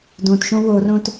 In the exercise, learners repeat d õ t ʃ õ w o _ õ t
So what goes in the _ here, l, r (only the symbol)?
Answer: r